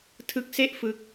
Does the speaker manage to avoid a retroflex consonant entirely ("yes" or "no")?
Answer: yes